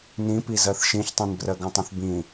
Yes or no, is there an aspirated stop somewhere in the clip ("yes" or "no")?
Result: no